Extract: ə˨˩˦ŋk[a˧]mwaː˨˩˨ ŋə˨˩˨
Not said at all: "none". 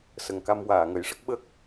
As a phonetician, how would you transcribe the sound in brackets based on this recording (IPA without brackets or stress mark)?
a˧